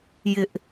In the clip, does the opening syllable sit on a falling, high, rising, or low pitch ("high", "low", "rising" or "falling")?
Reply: high